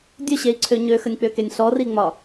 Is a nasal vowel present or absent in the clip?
absent